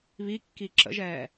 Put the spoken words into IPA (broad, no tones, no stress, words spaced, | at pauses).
βikːi ǁə̰ʒɛː